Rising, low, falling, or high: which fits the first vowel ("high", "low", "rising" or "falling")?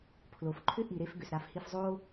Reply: low